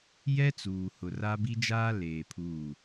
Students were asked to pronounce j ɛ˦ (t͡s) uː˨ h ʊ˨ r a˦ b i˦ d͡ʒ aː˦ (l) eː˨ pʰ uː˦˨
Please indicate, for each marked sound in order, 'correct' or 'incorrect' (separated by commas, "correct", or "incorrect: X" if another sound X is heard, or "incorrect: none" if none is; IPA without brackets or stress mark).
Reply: correct, correct